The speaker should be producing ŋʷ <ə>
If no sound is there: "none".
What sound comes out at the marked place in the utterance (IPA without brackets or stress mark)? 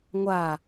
a